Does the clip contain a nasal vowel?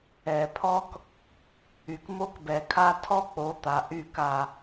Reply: no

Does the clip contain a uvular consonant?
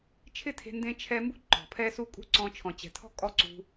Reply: no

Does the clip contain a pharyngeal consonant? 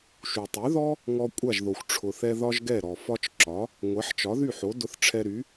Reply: yes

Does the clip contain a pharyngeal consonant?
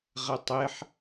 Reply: yes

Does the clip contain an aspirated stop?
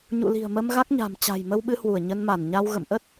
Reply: no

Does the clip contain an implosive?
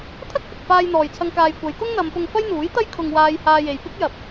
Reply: no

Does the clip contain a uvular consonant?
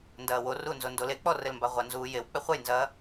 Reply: yes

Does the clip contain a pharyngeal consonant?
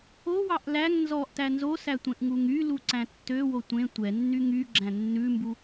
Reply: no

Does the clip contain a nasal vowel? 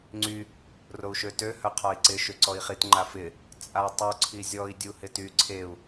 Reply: no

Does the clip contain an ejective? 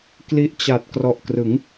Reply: no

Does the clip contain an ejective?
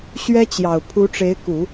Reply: no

